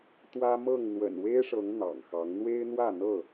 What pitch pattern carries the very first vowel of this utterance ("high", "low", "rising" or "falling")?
high